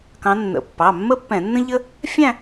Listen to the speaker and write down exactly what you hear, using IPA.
kɑ̃˨˦nːə̰˩˧˩ pːɑ˩˧˩mːə˥pːɛ̃˧˩˧nːə̃˥ ʎə˥ | fʲæ̃˥˧

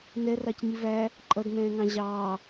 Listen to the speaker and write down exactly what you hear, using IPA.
nɛrɑcɲi væ | ǃʼʌdnɛ̃ːŋɑ̃ ʑɑː

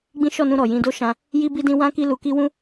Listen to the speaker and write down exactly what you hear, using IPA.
ɡ͡bĩ˦ ʃɔ˦˨nũ˧ ɾɔ˨jĩ˧do˦ ʃã˦ | ji˦bi˦dĩ˦ wã˦ki˦lu˧ki˦ wũ˦

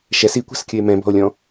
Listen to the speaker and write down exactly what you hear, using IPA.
ʃɛs ikʷa̤skʲɯe̯ mɛ̃bɔ̤o̯lʲɔ̃

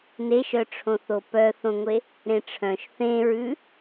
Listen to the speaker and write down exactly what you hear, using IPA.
neʃœʈ͡ʂʰõθo pœθõŋʷe | ɾẽʈ͡ʂʰœ̃ʃ θẽɹʉ

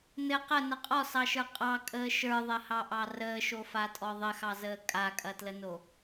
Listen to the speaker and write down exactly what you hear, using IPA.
nɘ qənə qʼɔsɑʃə˞ qʼɑkʼəː ʃə˞ðˤɐhɑʔɑ rəːʃofatʼɔ ðˤɘxɑzəː kʼakʼɐtləno

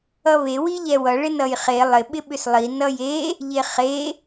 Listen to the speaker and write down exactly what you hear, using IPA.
ʌβe wiʎɛwʌ ɭɪnʌjχe lˠɪ ɓɪɓʏslˠi nʌje | ʎeχe

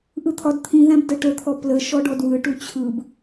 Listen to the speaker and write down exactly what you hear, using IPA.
ʔɯt̪ʰɒdt̪ʰĩðæ̃b dəʈət̪ʰɔ plə ʃɔɖɔdwɯʈu t͡ɕʰɯb

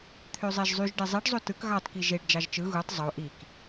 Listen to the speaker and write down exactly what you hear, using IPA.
t̪ʰøzˤeʒzˤyʒ ɖezˤiɖzˤo tɯk ɣɑtki ʒeɖ d͡ʒɑʒt͡ʃɯ ɣutˤ zˤo ʔik

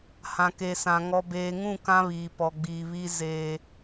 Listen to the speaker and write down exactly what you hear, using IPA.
hã˨ke˨sã˨ ŋɔ˨beː˨ŋũ˦˨ kã˦βiː˨pɔ˨ɡ͡biː˨ βi˦ zeː˦

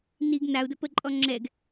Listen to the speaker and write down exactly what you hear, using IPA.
niɡ nau̯də pəǃʼɔ ŋ͡ǁɛɡ

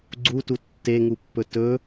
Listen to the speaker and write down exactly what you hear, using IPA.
ɡ͡ǀutu tːeŋupːɵ tɵ

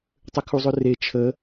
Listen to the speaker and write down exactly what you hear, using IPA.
tˤʏkʰuzˤʏre t͡ʃʰə

